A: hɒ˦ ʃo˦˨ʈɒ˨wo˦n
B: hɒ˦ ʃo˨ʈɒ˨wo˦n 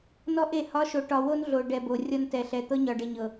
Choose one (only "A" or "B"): B